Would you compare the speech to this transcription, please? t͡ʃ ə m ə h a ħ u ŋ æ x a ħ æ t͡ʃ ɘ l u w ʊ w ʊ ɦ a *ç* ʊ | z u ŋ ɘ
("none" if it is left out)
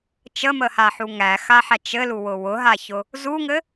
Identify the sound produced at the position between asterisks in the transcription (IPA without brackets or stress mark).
ç